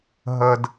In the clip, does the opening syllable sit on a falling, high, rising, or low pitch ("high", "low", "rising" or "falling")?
low